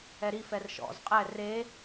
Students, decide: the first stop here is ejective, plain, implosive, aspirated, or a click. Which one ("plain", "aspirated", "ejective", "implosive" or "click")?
ejective